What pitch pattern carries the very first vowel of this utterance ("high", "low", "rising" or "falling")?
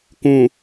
low